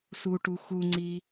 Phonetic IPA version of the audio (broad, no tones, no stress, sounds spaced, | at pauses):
s u ʈ u x u ŋ͡ǀ i